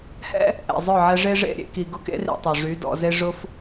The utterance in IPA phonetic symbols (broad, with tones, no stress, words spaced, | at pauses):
hɛ̰˦ | ʔɛ̰˨zˤœ˦˨ ʕɛ˧ʐe˦ʐḛ˦˨ ɾʲḛ˧ki˨ ɡʊ˦kḛ˦rḭ˨ tˤø˨ʐy˨˦dɔ̰˧ze˦ ʐʊ˦f